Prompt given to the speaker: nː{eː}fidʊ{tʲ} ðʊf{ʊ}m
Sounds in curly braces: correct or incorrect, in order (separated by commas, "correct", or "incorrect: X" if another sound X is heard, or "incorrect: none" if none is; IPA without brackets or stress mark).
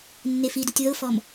incorrect: e, correct, incorrect: ɔ